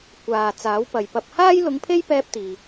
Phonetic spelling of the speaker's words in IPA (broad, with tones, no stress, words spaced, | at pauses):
kʷaː˨ t͡saː˨˥wpɐ˨jpɐ˧p̚ haː˥jlʊ˧ŋpʰe˥j pɛː˥p̚t̪iː˨